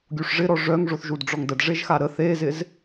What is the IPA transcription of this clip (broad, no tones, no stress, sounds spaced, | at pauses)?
ɡʲ u ʂ ʐ ɪ ɾ ɔ ʐ œ ŋ ʐ o θ ʒ u d ɖ͡ʐ ɔ ŋ d ə d ʐ e ʒ x a ɾ ə θ e z ɪ z